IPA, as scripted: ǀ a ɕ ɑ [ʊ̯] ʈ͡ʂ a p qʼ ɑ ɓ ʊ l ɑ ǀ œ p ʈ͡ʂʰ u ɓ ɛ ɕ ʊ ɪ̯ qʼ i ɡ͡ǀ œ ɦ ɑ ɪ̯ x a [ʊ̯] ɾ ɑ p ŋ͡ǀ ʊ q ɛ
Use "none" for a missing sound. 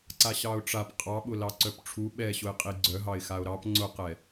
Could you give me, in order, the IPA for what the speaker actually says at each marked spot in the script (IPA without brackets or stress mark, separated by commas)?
ʊ̯, ʊ̯